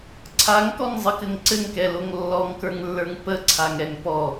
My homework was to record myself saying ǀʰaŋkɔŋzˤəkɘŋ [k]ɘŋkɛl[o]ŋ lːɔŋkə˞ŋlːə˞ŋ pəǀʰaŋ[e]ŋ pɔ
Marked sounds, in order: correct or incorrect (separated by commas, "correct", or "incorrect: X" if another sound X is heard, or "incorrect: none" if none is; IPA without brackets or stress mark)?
incorrect: ǀ, correct, incorrect: ɛ